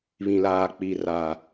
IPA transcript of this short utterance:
β ĩ˨ l aː˨ k͡p i˨ r a˨

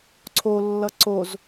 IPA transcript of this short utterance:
ǀʰ o lː ʌ ǀ o z

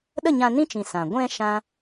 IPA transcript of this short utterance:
ɗ ə˦˨ ɲ ã˧ n ĩ˦ t͡ʃ ĩ˨ s ã˨ ɡʷ ɛ̃˧ ʃ ã˦

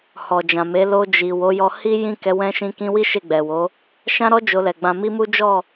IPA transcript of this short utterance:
h ɔ˨ d͡ʒ ã˨ m e˨˦ l o˧ d͡ʒ i˨ w o˨˦ j ɔ˧ h i˦ j ĩ˦˨ k ɛ˨˦ w ɛ̃˧ ʃ ĩ˧ k ĩ˧ w i˦ ʃ e˦˨ ɡ͡b ɛ˨ w o˨˦ | ʃ ã˦ ɾ ɔ˦ d͡ʒ o˧ l ɛ˨ ɡ͡b ã˧ m i˦ m u˦ d͡ʒ ɔ˦˨

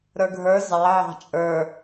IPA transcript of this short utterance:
ɾ ə˞ ɡʱ ə˞ z ɑ ʕ ɑ̤ t͡ʃʼ ə˞

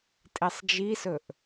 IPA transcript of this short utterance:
tʼ e sˤ d͡ʒ i s ɵ ʔ

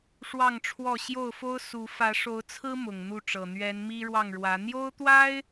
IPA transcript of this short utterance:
ʂ w ɑ˥˨ ŋ ʈ͡ʂʰ w ɔ˥˨ ɕ j o˥˨ ʊ̯ f o˦ ʊ̯ s u˨˦ f ä˨˦ ʂ o˨˦ ʊ̯ t͡sʰ ɹ̩˦ m ʊ˨˩ ŋ n̪ u˥˨ ʈ͡ʂ ɤ˨˩ n̪ ɥ ɛ˨˦ n m i˦ ɻ w ɑ˥˨ ŋ ɻ w ä˨˦ n̪ j o˦ ʊ̯ t̪ w a˦ ɪ̯

